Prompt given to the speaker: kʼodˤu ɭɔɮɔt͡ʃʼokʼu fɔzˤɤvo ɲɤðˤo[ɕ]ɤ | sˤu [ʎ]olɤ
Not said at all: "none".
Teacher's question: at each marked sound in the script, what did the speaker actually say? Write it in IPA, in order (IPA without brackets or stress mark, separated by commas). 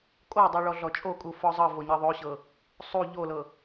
ɕ, ʎ